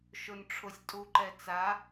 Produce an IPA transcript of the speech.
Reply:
ʃʊnʈ͡ʂʰʊsʲ tʼuǃɛt͡sa

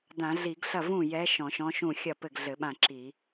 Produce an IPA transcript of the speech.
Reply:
dã˧˩˧ɮi˧˩˧ɡɬɐ˥˩ vũ˥˩jɛ˧˥ ʃɔ̃˧˩˧ʃɔ̃˧˥ʃũ˥˩ xʲɐ˥˩ pɘ˥˩ɡɮɘ˧˩˧ɓã˥˩ǁi˧˩˧

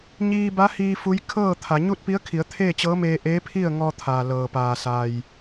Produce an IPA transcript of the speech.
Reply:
ɲiː˧ba˧˥hiː˧ fu˧˥j kʰɤː˥˨t̪ʰa˩˧ ɲu˥˨t̚pi˧˥ə̯kʰi˩˧ə̯t̪ʰeː˥˨ t͡ɕɤː˧˥meː˧ʔeː˧˥ pʰi˥˨ə̯ŋɔː˧t̪ʰaː˩ lɤː˩paː˩ sa˩j

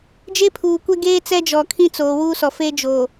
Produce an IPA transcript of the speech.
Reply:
d͡ʒe˦pʰuː˨kʷɛ˦ɡeː˦ t͡sɛ˦d͡ʒɔ˨kʰĩ˦t͡soː˨ wu˦sɔ˨fe˦ d͡ʒoː˨

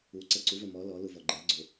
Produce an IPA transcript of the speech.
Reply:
uǀɛ ǀuvɛ mɔ lɔlu vɔɡ͡ǃɛɡ͡ǀo

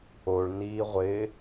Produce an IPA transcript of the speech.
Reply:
oɭniː ʁʷɪ

